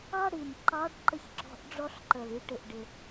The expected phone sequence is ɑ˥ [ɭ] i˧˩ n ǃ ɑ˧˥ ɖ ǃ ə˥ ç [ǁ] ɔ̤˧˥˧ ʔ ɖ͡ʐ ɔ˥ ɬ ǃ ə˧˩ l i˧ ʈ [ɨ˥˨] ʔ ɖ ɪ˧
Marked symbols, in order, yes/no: no, yes, no

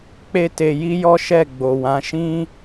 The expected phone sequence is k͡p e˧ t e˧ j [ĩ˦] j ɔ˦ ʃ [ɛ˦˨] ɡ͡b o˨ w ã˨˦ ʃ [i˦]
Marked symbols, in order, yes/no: no, yes, no

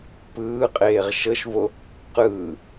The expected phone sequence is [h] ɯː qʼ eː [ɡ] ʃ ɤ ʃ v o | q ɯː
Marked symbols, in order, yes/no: no, no

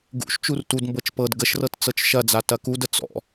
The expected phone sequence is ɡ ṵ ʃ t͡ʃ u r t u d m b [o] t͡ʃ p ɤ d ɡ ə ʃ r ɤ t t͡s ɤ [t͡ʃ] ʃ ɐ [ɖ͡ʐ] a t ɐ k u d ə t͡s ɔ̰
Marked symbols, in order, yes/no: no, yes, no

